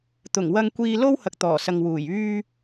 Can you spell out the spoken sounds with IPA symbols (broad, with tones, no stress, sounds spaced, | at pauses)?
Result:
t̪ ʊ˨˩ ŋ w ɐ˧ ŋ kʷ iː˧ l o˥ w h ɐ˨ k̚ t̪ ɔː˨˩ s ɐ˨ ŋ w uː˨˩ j yː˧